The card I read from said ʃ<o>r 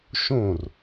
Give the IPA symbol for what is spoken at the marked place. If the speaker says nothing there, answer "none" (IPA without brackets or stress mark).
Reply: õ